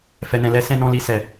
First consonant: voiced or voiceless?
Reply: voiceless